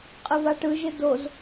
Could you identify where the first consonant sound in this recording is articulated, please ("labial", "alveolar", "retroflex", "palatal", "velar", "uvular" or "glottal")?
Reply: uvular